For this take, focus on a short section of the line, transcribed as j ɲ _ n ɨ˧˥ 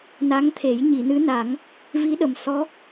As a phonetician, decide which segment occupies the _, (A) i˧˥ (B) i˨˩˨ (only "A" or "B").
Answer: B